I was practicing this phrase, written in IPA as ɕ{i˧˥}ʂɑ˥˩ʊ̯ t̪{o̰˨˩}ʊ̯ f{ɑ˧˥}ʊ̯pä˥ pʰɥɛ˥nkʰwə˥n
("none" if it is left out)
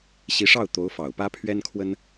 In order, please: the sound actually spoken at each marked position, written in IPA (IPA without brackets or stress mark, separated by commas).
i˧˥, o˧˥, ɑ˨˩